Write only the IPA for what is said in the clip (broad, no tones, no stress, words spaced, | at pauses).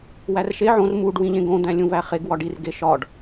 wærʃe ʕõr muɖ wĩʎẽɡõ d̪æ̃lʲũvæχeɡ wɒɖir ɡeʃɒɖ